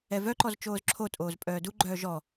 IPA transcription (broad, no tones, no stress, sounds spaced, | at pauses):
ɛ v œ ǃ ɔ z t͡ʃ oː z ǁʰ o tʼ oː z pʼ œː d u ɡ͡ǃ œː ʒ ɔ